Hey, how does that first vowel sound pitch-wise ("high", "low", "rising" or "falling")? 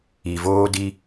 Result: low